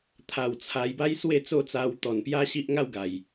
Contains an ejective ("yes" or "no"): no